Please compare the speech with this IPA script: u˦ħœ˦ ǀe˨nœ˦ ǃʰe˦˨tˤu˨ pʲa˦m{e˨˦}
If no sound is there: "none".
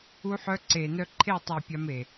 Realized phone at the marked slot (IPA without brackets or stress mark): e˨